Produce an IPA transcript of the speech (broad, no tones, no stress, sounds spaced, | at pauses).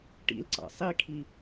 ʈ ḭ l ǀ ɑ̰ sˤ i kʰ i